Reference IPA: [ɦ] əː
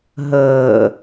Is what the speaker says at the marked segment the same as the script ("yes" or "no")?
yes